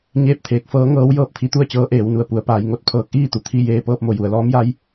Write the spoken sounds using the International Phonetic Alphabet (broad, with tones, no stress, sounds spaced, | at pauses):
ɲ eː˥˨ p̚ t̪ʰ eː˧˥ k̚ f ɤː˧˥ ŋ ɤː˧˥ w j ɤː˧ p̚ t̪ʰ i˧˥ t̪ u˥˨ ə̯ t͡ɕ ɤː˧˥ ʔ eː˩˧ w n u˩ ə̯ p u˩˧ ə̯ p aː˩˧ j ŋ o˧ t̚ pʰ ɤː˧˥ k̚ ʔ iː˥˨ t̪ u˩ t̪ʰ i˥˨ j eː˧ p ɤː˧ p̚ m o˩ j u˩˧ ə̯ l ɔː˧˥ m j a˧˥ j